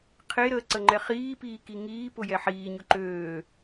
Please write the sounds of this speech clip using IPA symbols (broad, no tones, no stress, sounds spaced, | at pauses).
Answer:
qʰ e ɾ əː ǀ ə ŋ͡ǃ ɛ χ iː p iː k i ŋ iː p ʊ j ɛ ħ iː ɲ ʊ ǃ øː